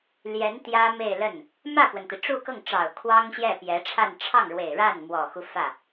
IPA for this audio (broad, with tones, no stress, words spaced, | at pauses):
ljɛ˧˥n t̪jä˥me˥˧ɪ̯lə˥˩n | mä˥˩pwə˩nt̪i˩ ʈ͡ʂu˥˧kɤ˥˩ŋʈ͡ʂɑ˨˩ʊ̯ kʰwɑ˥ŋɕjɛ˥˩pjɛ˧˥ʈ͡ʂʰa˥˧n ʈ͡ʂʰɑ˥˩ŋɻwe˨˩ɪ̯ ɻa˥˩nmwɔ˨˩xu˦ fä˥˩